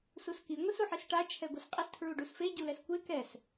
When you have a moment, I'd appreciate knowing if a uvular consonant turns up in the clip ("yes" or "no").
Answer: yes